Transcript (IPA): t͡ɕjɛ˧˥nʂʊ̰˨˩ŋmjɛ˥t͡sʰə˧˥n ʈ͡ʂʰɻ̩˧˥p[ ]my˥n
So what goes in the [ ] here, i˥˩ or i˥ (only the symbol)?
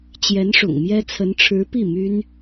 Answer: i˥˩